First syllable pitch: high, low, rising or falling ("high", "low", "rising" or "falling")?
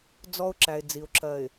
high